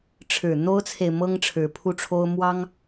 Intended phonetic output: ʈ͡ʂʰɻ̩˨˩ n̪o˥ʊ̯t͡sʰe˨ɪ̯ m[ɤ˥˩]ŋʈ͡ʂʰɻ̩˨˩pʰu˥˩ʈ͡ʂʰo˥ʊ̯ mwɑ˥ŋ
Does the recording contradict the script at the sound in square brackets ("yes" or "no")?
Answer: yes